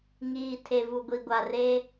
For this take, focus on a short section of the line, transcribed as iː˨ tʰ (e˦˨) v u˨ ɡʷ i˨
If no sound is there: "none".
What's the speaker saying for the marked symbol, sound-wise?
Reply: e˨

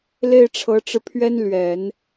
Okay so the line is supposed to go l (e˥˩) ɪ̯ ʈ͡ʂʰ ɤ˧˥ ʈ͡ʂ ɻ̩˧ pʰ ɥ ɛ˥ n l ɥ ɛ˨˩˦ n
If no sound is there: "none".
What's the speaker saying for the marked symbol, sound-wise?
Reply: e˥˩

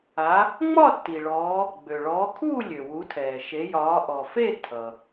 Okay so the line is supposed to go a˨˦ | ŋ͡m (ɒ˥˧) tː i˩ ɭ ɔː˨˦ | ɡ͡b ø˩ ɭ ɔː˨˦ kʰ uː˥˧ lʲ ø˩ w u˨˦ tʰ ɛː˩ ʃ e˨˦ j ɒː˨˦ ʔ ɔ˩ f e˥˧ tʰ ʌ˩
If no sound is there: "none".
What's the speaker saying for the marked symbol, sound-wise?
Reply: ɒ˥˧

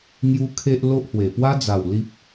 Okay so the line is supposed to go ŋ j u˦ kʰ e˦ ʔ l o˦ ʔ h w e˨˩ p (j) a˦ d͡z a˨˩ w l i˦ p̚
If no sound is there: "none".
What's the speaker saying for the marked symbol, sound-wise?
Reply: w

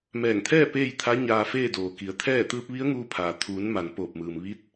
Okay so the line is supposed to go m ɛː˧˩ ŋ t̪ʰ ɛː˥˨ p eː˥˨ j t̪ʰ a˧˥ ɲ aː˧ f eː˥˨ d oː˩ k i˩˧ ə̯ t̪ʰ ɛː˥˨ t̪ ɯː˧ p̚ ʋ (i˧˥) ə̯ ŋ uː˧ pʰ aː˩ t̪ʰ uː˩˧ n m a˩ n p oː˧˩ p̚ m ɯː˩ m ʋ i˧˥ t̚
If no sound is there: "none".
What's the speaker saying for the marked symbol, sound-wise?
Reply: i˧˥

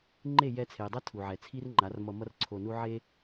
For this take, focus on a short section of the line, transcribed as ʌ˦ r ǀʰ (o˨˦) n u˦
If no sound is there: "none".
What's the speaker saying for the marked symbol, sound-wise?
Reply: o˧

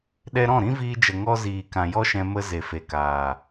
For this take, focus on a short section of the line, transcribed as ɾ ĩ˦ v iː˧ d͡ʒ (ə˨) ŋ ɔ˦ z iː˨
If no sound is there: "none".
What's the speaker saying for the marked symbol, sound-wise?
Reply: ə˨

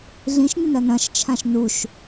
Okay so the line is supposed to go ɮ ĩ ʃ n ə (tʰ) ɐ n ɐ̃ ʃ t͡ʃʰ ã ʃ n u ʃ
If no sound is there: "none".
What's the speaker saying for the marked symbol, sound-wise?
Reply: n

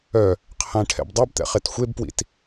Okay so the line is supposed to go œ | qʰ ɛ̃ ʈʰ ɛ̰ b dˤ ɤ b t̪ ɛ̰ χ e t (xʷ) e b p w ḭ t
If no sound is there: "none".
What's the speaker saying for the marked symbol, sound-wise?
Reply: xʷ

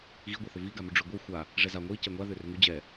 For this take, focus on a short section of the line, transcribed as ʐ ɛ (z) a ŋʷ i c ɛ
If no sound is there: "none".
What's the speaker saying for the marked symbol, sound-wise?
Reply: z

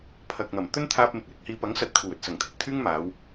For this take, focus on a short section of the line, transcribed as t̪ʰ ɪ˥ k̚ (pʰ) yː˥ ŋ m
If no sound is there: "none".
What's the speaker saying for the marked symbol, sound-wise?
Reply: t̪ʰ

